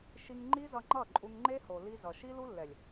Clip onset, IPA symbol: ʃ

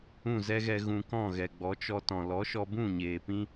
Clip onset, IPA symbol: ũ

